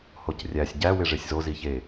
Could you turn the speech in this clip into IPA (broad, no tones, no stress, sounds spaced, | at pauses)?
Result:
h o c rʲ æ sʲ ɟ æ w e ʐ e sʲ z o z i ç e